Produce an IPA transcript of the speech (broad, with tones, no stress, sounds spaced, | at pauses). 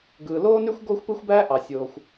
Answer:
ɡ ɯː˩ l oː˥ n y˥ xʷ ɡ oː˥ xʷ p ɯ˥ xʷ b æː˥ ʔ ɑ˩ sʲ oː˩ xʷ